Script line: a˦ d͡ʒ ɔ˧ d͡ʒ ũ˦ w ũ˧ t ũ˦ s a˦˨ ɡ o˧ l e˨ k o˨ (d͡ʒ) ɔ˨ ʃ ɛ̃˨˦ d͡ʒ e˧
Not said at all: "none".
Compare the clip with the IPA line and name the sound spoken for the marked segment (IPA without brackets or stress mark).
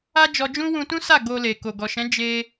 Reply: ɡ